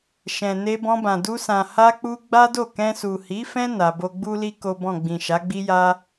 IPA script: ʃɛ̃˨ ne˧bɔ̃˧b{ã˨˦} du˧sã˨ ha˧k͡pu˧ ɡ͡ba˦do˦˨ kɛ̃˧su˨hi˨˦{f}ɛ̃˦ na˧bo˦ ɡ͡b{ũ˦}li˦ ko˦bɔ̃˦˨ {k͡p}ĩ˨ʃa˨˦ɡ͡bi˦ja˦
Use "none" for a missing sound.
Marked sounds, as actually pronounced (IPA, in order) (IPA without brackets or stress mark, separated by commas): ã˨, f, u˦, ɡ͡b